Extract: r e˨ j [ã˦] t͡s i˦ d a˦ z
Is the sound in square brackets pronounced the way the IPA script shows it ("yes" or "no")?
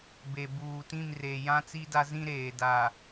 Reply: yes